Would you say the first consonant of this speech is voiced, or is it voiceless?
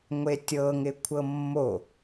voiced